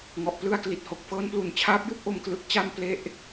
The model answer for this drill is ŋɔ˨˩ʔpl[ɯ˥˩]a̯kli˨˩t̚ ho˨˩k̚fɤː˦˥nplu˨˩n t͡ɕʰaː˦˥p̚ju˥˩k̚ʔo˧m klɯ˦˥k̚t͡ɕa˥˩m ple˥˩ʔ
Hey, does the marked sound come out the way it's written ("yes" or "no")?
yes